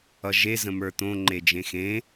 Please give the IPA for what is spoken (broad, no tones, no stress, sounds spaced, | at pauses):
ʌ ʒ e z ə̃ m ə˞ t̪ õ ŋ͡ǃ e d͡ʒ ẽ x ẽ